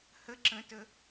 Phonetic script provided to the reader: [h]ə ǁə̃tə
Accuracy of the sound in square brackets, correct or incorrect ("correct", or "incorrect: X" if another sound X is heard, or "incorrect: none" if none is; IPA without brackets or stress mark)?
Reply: correct